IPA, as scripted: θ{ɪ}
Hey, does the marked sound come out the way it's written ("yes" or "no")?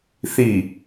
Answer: no